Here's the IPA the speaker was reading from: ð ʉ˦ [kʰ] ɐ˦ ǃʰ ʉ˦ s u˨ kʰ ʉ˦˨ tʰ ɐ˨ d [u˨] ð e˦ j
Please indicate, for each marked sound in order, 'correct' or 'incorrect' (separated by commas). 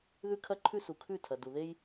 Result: correct, correct